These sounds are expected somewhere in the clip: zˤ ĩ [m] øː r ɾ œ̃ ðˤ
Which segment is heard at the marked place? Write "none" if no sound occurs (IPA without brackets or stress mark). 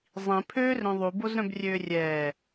pʰ